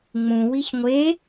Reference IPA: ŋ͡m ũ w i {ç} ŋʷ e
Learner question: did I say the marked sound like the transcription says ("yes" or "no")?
yes